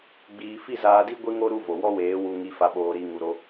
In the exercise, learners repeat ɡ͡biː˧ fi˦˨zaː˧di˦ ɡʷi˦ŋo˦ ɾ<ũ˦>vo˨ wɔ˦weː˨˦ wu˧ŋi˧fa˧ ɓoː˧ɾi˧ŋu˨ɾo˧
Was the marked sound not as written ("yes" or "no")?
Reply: yes